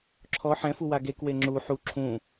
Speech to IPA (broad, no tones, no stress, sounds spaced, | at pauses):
ǁʰ ɔ ħ ɛ̃ f u w a ɡ e k w e ŋ͡ǁ u ħ u ǁʰ ũ